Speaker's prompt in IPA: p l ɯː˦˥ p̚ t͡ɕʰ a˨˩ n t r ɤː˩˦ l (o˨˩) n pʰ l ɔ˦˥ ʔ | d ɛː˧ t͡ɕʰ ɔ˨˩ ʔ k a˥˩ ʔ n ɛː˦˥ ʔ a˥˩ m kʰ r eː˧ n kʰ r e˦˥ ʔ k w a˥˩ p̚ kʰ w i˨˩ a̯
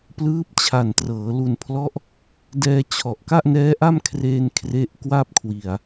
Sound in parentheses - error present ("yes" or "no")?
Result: yes